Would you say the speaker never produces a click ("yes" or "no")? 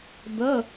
yes